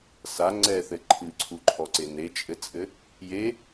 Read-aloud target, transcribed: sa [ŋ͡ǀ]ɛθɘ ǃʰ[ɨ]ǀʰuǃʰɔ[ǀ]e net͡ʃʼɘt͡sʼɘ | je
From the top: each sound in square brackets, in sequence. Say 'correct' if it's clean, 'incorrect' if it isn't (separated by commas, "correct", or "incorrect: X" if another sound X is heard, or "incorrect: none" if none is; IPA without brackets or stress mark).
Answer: correct, correct, correct